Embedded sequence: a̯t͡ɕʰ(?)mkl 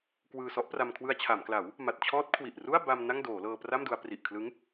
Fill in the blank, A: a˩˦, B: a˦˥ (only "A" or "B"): A